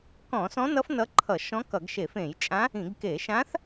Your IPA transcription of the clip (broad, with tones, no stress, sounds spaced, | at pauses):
k ɔ̃˧˩˧ s ɔ̃˧˥ n ʌ˧˥ f n ʌ˧˥ ǃʰ ʌ˧˩˧ ʃ ɔ̃˧˥ k ʌ˧˩˧ ɡ ʃ e˧˩˧ f ẽ˧˩˧ j t͡ʃʼ ã˧˥ | ĩ˧˩˧ ɡ k e˧˩˧ ʃ ã˧˥ θ